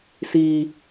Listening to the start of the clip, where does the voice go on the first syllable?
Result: low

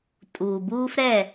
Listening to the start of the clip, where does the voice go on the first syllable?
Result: low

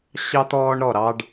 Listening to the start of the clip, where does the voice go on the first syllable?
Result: high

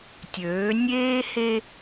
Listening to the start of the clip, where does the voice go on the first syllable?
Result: rising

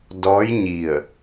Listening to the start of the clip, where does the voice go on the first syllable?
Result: rising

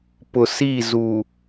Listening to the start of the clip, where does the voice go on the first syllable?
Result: low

